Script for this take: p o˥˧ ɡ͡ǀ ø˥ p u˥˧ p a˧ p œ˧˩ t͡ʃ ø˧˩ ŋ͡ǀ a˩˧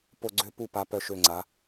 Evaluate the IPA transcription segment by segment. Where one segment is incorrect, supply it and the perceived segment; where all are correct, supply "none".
t͡ʃ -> ʃ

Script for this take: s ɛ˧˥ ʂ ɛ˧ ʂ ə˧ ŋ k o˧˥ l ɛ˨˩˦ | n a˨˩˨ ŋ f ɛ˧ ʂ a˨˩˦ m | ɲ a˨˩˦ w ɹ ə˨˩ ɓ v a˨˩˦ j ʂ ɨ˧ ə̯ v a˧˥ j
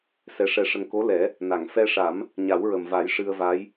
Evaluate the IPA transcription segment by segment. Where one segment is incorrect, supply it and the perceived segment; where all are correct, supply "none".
ɓ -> m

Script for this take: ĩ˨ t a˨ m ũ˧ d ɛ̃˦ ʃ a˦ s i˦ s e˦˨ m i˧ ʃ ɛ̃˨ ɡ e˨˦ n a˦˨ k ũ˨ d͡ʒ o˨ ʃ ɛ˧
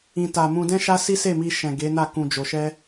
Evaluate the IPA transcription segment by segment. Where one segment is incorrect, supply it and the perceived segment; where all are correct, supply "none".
none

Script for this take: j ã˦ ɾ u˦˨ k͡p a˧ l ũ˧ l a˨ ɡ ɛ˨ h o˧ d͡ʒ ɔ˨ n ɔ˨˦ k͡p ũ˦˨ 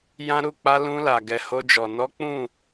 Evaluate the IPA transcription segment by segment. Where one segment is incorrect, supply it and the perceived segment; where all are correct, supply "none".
none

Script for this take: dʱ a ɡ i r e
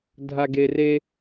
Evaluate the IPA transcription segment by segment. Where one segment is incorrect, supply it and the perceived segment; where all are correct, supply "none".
i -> e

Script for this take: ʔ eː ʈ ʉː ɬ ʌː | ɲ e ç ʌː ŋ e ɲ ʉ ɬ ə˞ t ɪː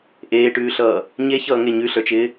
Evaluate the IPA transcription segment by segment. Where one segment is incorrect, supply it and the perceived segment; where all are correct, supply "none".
t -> t͡ʃ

